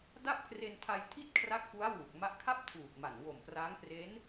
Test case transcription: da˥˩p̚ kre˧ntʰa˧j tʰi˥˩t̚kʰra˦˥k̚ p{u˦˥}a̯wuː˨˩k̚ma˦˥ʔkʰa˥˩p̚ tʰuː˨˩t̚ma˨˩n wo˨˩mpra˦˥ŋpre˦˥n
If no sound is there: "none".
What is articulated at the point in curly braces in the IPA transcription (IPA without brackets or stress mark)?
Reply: u˦˥